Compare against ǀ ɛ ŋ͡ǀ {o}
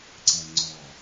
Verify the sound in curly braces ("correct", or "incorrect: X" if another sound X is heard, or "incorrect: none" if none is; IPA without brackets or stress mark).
incorrect: ɔ